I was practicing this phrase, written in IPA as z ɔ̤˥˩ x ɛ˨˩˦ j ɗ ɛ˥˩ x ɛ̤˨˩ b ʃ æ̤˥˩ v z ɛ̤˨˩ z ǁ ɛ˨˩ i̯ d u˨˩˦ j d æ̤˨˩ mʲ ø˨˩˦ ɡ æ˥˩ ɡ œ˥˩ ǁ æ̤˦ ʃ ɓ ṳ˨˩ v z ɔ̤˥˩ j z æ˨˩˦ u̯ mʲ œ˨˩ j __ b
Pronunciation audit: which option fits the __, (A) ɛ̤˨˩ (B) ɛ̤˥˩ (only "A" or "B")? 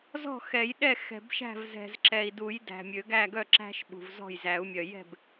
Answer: B